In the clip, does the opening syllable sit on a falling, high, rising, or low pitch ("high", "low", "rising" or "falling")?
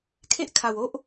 high